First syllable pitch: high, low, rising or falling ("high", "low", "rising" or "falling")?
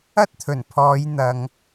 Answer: high